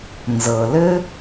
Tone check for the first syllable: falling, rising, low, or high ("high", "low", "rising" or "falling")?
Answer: low